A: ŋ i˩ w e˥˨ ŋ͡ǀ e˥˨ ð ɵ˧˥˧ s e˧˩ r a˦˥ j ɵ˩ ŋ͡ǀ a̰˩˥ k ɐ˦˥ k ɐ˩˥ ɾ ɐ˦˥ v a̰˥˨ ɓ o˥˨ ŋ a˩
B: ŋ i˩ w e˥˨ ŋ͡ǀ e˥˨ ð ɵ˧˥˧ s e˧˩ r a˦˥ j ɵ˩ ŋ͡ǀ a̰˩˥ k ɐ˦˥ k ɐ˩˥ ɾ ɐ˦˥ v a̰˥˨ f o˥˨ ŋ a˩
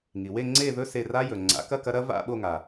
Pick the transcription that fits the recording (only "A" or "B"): A